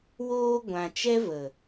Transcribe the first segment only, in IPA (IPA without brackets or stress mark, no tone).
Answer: w